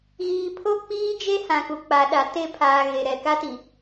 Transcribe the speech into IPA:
ɣ iː˨ pʰ o˦ k͡p iː˦ d͡ʒ e˦ h ã˨ k u˨ k͡p a˨ ɗ a˨ t e˦˨ pʰ aː˨ ɣ e˨ ɾ ɛ˨ k a˦ t i˨

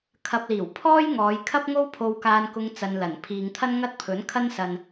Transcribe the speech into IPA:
kʰ ɐ˧ p̚ l iː˨˩ w pʰ ɔː˥ j ŋ ɔː˨˧ j kʰ ɐ˥ p̚ ŋ o˥ w pʰ o˧ w k aː˧ n k ʊ˧ ŋ t͡s ɐ˧ n l ɐ˨˩ n pʰ iː˧ ŋ t̪ʰ ɐ˥ n ŋ ɐ˥ t̚ pʰ ɵ˨˥ n kʰ ɐ˥ n s ɐ˨ n

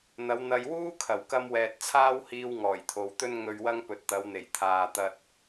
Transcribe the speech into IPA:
n̪ ɐ˨˧ w n̪ ɐ˧ j w uː˥ kʰ ɐ˨˩ w k ɐ˧ m w ɛː˨ t̚ t͡sʰ aː˥ w h iː˧ w ŋ ɔː˨˩ j t̪ʰ o˨ w t̪ ɵ˥ n ŋ ɵ˧ ɥ w ɐ˥ ŋ p ɵ˨ t̚ t̪ ɐ˨˧ w n̪ e˨˩ j t̪ʰ aː˨ t̪ ɐ˧ t̚

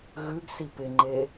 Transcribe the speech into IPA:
ɣ ʉ ɡ s i p ɪ ŋ͡ǃ e

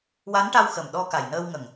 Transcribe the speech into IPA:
w a˧˥ n ʈ a˧ w x ə˨˩ m ɗ ɔ˧ k a˨˩ j n əː˧ w ŋ ə˨˩ ŋ

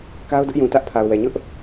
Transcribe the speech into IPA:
k a˦ ʊ̯ d ʊ˦ ʔ j ũ˨ t ä˦ ʔ pʰ a˨ ʊ̯ w ɛ˨ ɲ ʊ˦ ʔ

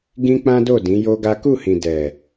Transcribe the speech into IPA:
ɡ ĩ˦ k͡p ã˦ d o˦˨ d ĩ˨˦ j o˦ ɡ a˦ k u˦˨ h ĩ˨ d ɛ˨

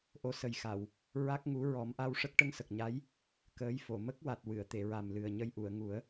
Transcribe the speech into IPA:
ʔ o˧˥ s ə˨˩ j x a˨˩˨ w | ɹ a˦˥ k̚ ŋ u˧˥ ɹ ɔ˨˩˦ m ʔ a˧ w ʂ ə˦˥ k̚ ʈ ə˧ ŋ s ə˨˩ k̚ ɲ a˧˥ j | k əː˧˥ j f o˨˩˨ m ə˦˥ k̚ w a˨˩ t̚ w ɨ˨˩˨ ə̯ t̪ e˨˩˨ ɹ a˨˩ m l ɨ˨˩ ə̯ ɲ ə˧ j ʔ u˨˩˨ ə̯ ŋ u˨˩˦ ə̯

